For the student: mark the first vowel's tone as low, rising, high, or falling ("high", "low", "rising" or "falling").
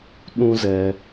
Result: high